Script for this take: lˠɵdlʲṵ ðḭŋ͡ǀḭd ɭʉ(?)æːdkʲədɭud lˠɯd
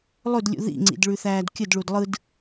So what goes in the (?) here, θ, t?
θ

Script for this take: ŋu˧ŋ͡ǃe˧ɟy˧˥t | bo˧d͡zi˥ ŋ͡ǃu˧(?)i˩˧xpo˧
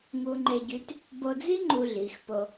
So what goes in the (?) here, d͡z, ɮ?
ɮ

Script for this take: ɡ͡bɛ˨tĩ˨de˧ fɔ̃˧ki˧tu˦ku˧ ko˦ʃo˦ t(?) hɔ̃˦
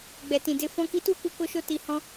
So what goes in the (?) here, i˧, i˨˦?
i˧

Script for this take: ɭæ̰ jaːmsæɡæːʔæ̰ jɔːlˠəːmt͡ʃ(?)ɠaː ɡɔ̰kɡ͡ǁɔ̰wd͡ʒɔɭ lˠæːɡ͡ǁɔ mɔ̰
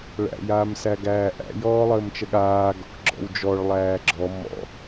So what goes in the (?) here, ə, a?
ə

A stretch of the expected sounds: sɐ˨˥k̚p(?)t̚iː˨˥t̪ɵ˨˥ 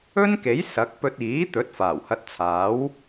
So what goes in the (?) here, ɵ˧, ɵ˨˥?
ɵ˧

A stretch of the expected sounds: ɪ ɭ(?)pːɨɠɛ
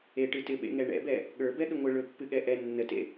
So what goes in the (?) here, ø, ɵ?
ɵ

